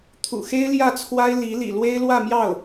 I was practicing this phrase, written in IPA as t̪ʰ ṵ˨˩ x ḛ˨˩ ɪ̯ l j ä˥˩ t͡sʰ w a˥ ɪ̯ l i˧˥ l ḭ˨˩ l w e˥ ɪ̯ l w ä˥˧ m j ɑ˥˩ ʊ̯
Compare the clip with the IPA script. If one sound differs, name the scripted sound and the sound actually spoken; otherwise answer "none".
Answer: ḛ˨˩ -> e˥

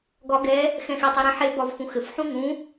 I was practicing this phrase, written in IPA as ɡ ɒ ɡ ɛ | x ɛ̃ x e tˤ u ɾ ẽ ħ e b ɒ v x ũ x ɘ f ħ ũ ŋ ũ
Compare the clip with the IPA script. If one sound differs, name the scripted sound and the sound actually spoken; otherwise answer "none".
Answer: none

